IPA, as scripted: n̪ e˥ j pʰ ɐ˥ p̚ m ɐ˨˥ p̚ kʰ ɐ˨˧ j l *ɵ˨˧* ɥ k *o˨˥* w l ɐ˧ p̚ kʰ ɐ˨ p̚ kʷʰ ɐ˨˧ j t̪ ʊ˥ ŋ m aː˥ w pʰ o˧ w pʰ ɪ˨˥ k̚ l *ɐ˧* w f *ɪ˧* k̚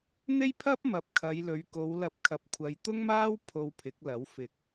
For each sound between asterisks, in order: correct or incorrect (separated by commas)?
correct, incorrect, incorrect, incorrect